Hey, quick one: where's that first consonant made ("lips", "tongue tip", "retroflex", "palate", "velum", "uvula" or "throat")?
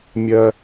lips